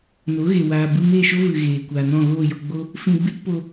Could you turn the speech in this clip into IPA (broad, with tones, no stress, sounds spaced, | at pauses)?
n o˨˦ ɣ e˨ w aː˨ b ɨ˧ m eː˦˨ ʃ o˦ v ɨ˨ ɣ eː˨ kʷ aː˨ n ɔ̃˦˨ ɣ oː˦˨ j o˧ ɡ͡b o˦ | f ĩ˧ ɡ͡b ɨ˦ t p o˧